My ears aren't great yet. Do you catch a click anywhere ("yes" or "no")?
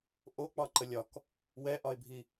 yes